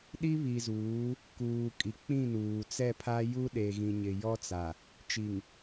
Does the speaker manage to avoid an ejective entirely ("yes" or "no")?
no